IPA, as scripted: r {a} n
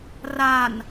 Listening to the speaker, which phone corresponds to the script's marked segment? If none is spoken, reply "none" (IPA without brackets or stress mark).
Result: a